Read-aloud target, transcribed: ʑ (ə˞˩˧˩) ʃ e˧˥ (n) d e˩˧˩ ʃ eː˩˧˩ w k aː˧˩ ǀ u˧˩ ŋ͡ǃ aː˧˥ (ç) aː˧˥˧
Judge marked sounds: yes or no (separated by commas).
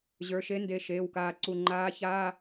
yes, yes, yes